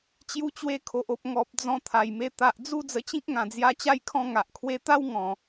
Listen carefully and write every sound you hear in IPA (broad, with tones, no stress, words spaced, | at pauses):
t͡ɕju˧t͡ɕwe˧kʰo˨ʔo˨p̚ ŋɔ˨p̚ d͡zɔ̃˧ t̪ʰa˨˩jme˧ t̪a˨ʔd͡zu˥˧ d͡zə˧t͡ɕĩ˦k̚ŋã˨˩d͡zja˧ t͡ɕa˦jkʰɔ̃˥˧ ŋa˨ʔkʰwe˧t̪a˦w ŋɔ̃˨˩